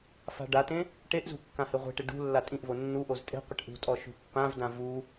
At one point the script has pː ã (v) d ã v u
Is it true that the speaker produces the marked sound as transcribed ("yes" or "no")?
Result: yes